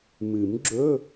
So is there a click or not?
yes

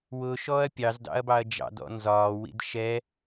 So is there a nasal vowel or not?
no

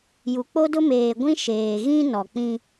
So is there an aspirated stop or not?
no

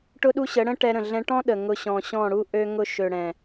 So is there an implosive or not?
yes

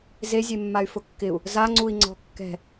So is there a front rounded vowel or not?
yes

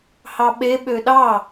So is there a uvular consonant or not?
no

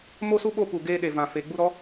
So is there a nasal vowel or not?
yes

